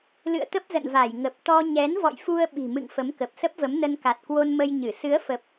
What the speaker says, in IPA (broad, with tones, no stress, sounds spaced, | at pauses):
l ɨ̰˧˨ ə̯ t̪ ə˦˥ p̚ z ə̰˧˨ n v a˧˩ j ŋ ə˨˩ p̚ t̪ ɔ˧ ɲ ɛ˨˦ n v ɔ̰˧˨ j f u˧ ə̯ ɓ i̤˨˩ m ɨ̰˧˨ ŋ f ə˨˦ m k ə˨˩ p̚ s ə˦˥ p̚ v ə˨˦ m n ə˧ n k a˨˩ t̚ k w o˧ n m ə˧ j ɲ ɨ˧˩ s ɨ˨˦ ə̯ f ə˨˩ p̚